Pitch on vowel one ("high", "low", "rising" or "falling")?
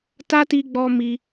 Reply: high